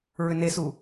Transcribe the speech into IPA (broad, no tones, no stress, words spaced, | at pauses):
ɹʏnesu